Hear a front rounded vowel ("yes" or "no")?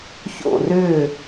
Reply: yes